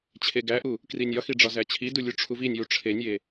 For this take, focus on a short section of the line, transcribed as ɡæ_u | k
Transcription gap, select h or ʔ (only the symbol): ʔ